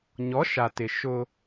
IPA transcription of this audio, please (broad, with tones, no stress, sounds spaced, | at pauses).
ɲ ɔ˨˦ ʃ a˨ t ɪ˨ ʃ ʊ˦